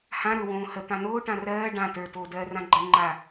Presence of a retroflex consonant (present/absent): present